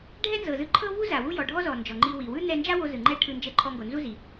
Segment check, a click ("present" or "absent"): present